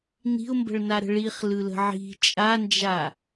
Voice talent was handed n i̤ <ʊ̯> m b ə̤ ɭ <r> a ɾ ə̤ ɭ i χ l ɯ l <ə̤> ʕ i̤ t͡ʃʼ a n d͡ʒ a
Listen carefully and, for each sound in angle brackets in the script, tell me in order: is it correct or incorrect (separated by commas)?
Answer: correct, incorrect, correct